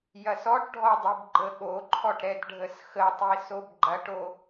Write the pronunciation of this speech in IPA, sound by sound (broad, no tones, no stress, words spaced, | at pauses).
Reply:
jɐsɔʈɖʱɔdˤib ɡ͡ǃəɠoǃʰɔʈɾɛd ɖʱəsxətˤi sobɡ͡ǃɐʈo